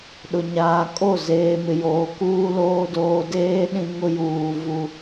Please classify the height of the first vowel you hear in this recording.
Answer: high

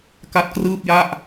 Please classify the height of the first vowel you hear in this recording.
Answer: low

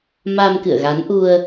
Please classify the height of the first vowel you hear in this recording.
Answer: low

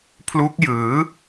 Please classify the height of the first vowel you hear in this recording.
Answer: high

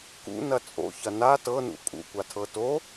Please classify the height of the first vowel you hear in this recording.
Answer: high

